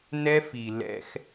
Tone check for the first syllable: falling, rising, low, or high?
high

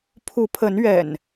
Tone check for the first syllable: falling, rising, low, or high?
rising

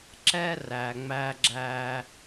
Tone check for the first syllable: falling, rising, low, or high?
high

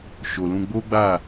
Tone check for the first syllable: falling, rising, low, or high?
low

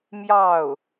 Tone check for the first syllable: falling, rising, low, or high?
falling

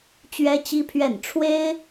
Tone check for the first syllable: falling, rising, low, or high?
high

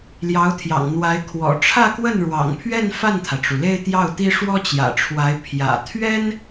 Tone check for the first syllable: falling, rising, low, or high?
rising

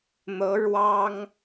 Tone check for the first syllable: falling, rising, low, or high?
rising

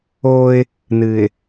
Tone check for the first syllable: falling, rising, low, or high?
high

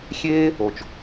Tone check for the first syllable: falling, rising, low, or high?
high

